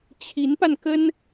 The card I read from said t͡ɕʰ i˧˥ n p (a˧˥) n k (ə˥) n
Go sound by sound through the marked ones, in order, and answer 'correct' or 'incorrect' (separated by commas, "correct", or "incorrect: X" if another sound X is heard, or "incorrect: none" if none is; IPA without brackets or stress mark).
incorrect: a˧, correct